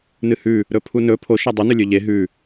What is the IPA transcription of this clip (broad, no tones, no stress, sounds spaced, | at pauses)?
n ɨ h ʉ | ɾ ɵ pʰ u n ɵ pʰ o ʃ a dˤ ʉ n ɵ lʲ ɵ ʎ e ɦ ʉ